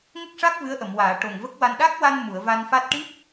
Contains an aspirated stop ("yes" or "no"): no